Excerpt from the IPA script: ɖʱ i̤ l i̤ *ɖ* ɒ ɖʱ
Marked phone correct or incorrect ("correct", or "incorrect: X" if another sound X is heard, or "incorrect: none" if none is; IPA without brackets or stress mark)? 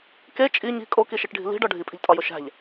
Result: correct